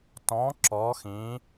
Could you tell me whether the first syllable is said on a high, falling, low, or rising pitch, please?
rising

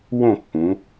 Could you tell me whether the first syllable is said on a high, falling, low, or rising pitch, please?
falling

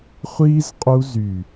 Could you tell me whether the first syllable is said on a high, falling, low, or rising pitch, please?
high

